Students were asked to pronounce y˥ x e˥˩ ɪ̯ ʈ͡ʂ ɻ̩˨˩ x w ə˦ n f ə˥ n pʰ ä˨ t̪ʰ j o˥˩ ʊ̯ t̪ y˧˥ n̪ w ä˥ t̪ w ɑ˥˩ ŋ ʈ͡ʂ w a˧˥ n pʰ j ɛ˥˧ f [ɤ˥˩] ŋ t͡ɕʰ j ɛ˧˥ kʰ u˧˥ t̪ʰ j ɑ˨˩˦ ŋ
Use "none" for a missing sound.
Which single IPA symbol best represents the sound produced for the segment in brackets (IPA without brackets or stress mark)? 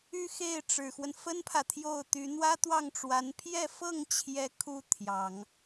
ɤ˥˩